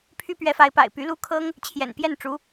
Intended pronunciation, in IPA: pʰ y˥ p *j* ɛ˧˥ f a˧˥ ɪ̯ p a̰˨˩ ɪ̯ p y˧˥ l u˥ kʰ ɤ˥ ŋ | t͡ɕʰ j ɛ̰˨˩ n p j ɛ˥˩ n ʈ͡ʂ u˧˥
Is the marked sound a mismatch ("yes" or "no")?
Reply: yes